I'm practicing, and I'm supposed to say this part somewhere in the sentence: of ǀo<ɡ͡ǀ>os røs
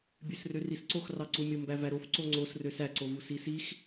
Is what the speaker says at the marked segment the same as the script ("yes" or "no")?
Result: no